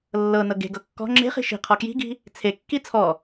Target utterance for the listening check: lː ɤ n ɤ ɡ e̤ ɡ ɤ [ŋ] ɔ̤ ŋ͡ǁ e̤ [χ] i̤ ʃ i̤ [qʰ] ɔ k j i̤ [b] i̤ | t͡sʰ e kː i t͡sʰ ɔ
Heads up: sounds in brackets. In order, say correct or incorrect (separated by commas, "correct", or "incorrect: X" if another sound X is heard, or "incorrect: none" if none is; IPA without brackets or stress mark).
incorrect: kː, correct, correct, incorrect: ɡ